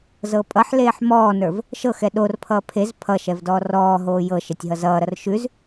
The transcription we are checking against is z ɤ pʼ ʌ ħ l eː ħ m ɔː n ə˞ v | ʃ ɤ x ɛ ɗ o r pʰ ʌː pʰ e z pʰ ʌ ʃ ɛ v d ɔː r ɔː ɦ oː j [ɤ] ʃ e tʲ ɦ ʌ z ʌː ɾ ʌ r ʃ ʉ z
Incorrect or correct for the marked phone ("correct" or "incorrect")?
correct